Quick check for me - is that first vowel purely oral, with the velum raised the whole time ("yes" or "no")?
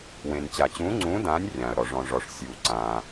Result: no